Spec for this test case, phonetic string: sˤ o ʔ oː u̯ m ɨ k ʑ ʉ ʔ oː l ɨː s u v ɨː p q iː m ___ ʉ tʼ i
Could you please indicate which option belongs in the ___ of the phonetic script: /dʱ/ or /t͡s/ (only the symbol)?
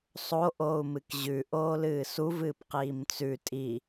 t͡s